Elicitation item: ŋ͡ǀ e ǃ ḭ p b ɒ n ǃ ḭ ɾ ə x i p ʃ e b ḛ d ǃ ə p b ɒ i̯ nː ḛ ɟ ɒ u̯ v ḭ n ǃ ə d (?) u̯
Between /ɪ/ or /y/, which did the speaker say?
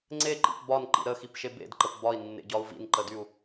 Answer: y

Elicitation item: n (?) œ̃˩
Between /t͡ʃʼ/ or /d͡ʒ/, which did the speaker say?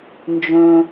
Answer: d͡ʒ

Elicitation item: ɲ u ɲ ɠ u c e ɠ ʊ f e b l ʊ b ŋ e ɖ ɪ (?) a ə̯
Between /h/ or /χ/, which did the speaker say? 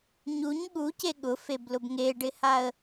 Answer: h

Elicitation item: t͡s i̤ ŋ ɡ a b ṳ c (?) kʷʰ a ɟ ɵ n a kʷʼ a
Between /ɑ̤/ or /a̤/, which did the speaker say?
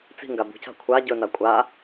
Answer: a̤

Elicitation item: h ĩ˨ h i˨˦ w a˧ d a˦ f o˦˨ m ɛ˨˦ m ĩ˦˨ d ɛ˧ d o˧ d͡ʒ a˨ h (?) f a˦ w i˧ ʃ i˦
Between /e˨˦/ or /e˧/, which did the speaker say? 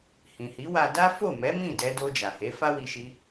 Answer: e˨˦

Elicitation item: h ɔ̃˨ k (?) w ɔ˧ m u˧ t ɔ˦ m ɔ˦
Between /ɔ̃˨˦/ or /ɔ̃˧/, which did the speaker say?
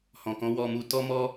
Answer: ɔ̃˨˦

